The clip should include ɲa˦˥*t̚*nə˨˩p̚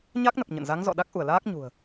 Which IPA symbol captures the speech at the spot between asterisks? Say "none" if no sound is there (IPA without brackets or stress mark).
k̚